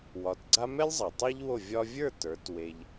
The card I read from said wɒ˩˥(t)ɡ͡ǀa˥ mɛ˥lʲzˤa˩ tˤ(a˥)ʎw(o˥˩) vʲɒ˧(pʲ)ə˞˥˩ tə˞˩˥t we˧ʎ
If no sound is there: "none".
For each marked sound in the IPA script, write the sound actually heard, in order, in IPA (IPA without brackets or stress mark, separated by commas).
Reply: t, a˥, o˥˩, vʲ